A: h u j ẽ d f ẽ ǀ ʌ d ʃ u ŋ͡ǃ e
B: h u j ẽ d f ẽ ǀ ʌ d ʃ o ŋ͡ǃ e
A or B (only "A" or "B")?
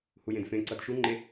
A